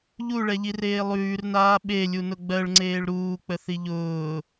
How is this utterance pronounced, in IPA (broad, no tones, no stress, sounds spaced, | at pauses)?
ʎ u ɭ ɛ ʎ i r eː lˠ ʉː r n aː ɓ e lʲ u n ʊ ɡ͡b ɜ ɭ ŋ͡ǀ eː ɭ ɾ uː k͡p ə θ i ʎ ʊː